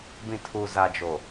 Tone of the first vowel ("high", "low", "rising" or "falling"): low